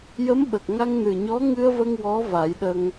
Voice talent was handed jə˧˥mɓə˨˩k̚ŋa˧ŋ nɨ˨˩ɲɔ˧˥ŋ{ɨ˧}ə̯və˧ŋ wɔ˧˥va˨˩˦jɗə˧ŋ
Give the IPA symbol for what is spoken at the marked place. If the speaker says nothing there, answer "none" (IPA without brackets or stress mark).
ɨ˧